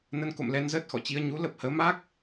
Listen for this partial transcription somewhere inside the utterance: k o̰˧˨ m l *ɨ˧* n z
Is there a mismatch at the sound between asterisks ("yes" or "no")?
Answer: yes